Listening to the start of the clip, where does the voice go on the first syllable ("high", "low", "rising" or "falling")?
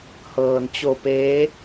low